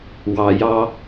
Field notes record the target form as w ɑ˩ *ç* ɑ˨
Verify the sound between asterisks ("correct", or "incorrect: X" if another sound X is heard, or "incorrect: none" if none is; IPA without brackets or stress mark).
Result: incorrect: j